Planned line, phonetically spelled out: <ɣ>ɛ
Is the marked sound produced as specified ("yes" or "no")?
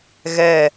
yes